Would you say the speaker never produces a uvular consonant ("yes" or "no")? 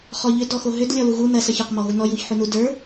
no